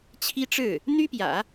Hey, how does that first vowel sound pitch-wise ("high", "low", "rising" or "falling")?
high